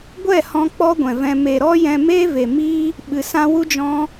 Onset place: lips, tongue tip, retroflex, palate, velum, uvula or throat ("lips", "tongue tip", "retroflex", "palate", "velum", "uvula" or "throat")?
velum